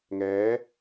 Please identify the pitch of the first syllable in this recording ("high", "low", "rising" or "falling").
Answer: rising